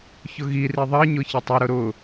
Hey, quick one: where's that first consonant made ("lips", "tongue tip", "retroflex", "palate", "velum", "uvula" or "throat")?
palate